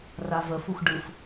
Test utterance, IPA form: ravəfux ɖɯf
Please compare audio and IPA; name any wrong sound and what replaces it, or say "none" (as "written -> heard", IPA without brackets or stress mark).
none